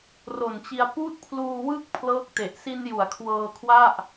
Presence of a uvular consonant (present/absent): absent